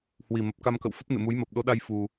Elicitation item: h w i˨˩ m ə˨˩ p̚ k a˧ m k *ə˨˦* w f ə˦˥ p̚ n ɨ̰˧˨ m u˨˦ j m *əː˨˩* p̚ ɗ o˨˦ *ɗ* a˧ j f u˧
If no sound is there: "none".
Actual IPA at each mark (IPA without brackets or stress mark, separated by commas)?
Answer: ə̰˧˨, əː˨˩, ɗ